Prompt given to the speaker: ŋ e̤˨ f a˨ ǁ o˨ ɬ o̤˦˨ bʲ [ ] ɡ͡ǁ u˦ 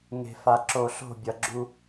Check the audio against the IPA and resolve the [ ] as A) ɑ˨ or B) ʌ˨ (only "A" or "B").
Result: B